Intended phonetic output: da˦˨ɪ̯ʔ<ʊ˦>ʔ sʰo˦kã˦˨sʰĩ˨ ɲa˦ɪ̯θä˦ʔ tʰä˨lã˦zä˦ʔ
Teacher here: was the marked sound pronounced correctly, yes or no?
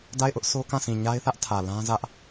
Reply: yes